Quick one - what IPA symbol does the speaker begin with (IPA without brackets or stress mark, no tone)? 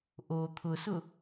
ʔ